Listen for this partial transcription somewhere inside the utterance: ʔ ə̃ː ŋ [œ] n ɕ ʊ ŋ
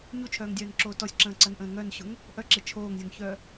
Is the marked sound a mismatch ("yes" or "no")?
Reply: no